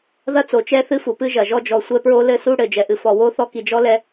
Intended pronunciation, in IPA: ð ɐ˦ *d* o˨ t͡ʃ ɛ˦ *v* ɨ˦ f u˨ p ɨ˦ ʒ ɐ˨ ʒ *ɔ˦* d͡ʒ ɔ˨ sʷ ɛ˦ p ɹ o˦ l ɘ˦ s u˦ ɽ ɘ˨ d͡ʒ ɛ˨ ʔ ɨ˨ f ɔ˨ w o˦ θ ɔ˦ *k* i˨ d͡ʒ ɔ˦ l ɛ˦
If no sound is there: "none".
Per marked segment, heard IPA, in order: t͡s, θ, ɔ˦, k

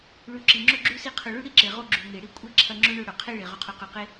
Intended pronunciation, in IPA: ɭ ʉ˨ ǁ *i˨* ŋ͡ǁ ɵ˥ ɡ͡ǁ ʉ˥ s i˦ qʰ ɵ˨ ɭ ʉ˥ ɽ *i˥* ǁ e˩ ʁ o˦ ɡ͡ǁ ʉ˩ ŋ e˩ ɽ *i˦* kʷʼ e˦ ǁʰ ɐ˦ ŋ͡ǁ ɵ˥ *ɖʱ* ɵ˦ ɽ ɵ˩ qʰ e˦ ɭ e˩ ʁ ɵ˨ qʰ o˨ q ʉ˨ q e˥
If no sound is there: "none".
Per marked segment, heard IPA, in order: i˩, i˥, i˦, ɳ

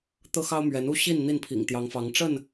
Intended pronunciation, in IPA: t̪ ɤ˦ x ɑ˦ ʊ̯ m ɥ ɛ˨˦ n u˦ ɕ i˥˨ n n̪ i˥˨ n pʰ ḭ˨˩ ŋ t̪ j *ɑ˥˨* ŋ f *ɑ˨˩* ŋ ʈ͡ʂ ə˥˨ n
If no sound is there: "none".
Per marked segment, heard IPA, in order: ɑ˨˦, ɑ˨˦

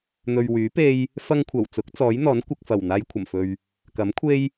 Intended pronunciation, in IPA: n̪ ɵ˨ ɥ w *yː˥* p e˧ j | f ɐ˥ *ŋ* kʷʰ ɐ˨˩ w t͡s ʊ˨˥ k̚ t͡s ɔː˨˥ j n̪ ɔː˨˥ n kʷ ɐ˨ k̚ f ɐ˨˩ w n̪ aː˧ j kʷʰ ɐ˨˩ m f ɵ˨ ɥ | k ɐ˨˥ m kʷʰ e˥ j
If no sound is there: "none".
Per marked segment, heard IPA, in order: yː˨˥, ŋ

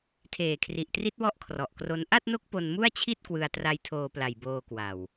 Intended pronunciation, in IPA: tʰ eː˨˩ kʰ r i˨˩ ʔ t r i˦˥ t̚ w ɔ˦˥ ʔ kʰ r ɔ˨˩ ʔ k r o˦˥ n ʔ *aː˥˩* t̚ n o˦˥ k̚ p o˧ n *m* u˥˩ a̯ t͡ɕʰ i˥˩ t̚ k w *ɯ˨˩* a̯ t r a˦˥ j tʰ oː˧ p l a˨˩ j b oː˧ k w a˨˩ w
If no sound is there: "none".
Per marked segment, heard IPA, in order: a˥˩, m, ɯ˧

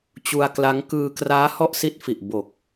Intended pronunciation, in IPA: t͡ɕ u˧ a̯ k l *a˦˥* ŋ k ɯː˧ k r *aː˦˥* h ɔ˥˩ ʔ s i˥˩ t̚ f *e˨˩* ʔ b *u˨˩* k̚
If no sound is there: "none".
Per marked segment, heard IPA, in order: a˦˥, aː˦˥, i˨˩, o˨˩

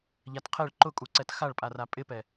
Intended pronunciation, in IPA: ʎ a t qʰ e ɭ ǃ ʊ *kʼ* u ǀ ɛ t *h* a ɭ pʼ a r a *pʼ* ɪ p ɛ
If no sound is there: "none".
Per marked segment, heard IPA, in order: kʼ, x, pʼ

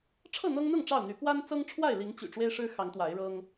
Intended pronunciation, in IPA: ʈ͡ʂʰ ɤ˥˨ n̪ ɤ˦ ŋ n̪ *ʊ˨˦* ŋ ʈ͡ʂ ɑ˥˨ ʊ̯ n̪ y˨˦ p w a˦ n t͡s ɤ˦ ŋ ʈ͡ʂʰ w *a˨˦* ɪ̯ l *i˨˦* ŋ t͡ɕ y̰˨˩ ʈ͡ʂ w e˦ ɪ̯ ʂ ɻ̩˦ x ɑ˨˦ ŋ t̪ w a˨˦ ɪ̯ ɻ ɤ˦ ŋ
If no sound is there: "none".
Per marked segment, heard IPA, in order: ʊ˥˨, a˥˨, i˨˦

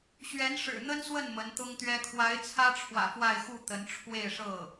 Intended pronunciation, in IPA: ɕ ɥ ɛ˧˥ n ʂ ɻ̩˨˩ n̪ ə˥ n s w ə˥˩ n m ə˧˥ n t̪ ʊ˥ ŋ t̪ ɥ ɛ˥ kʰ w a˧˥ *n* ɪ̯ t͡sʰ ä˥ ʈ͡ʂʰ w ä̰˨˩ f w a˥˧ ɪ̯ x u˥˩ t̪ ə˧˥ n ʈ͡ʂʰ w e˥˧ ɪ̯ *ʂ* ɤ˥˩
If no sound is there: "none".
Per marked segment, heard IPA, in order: none, ʂ

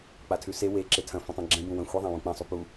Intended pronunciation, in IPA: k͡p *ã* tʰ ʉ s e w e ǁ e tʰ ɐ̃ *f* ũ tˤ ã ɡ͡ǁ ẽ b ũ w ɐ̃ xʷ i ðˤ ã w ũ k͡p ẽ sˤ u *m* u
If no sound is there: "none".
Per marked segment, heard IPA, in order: a, f, p

